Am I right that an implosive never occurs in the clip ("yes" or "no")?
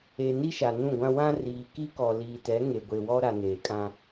yes